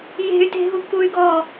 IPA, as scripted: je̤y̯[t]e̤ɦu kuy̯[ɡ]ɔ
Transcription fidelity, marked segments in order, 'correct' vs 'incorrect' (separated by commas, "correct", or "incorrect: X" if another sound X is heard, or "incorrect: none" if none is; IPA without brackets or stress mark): correct, correct